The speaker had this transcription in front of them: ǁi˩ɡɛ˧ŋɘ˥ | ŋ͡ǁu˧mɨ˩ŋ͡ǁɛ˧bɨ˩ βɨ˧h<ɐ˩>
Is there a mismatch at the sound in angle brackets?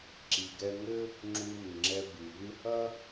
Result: yes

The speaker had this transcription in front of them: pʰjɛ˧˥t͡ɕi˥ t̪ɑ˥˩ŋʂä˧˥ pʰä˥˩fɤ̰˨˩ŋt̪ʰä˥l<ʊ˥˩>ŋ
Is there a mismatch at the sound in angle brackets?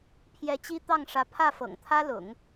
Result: yes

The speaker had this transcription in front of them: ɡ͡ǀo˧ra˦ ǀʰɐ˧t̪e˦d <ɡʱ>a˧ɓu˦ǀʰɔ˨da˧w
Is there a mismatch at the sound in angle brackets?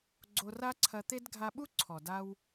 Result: no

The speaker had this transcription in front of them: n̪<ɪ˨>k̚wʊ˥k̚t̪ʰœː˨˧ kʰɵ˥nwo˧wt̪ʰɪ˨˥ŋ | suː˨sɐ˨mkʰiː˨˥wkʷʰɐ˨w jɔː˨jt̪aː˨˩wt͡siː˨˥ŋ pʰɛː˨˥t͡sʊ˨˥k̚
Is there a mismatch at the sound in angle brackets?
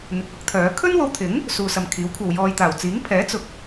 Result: no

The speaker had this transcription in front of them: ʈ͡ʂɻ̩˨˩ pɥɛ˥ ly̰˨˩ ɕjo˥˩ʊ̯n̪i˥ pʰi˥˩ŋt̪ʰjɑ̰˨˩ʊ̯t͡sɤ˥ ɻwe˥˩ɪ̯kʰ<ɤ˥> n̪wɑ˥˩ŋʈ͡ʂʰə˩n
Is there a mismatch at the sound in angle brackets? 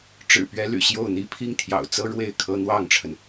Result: no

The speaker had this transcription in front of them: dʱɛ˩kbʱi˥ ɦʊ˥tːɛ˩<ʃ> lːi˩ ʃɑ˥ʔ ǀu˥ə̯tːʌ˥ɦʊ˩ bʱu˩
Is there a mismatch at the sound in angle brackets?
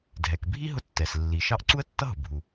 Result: yes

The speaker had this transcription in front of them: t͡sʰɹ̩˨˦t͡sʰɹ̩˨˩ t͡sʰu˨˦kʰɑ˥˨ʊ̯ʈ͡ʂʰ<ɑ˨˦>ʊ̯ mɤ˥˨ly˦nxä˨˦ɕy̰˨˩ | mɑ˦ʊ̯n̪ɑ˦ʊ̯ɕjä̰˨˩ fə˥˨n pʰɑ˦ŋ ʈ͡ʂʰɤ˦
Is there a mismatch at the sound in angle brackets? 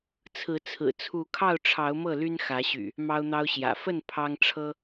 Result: no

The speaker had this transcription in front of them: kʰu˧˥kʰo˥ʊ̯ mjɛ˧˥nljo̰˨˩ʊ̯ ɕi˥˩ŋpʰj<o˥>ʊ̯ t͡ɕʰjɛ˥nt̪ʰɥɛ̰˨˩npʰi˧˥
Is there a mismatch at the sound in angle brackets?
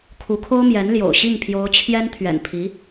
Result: yes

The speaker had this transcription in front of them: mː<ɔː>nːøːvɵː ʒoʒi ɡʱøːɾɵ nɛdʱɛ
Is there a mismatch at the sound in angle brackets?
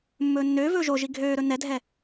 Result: yes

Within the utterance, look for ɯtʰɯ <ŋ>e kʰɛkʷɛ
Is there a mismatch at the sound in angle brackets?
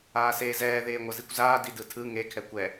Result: no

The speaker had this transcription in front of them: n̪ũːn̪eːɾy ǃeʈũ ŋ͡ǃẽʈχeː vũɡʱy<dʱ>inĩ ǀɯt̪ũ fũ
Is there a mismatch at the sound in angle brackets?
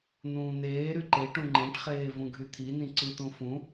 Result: yes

